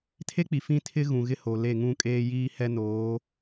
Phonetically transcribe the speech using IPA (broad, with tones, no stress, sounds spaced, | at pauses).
tʰ e˦ k͡p i˨ f ĩ˦ tʰ ɪ˦ ɣ ũ˨ ɣ ɪ˦ h o˨ l e˦˨ ŋ ũ˦ kʼ eː˦ j iː˦ h ɛ˦ n oː˨˦